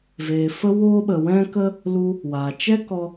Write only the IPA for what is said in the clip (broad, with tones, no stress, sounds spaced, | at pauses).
v eː˨ f ə˦ w oː˦ ɓ ə˨ w ɛ̃˦ k ə˦ | l u˧ | w aː˨ t͡ʃ ɛ˦ k ɔ˧